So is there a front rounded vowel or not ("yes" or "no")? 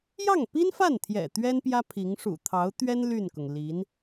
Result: yes